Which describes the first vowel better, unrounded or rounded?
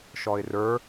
rounded